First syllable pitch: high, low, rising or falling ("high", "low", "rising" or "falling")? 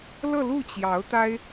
falling